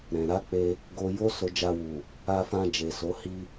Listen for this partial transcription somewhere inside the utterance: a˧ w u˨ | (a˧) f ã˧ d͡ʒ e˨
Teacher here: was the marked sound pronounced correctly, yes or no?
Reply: yes